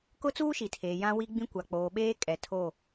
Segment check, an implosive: present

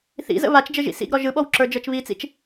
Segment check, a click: present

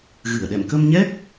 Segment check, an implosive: present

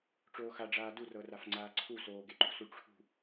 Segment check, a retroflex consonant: present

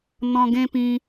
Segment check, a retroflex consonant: absent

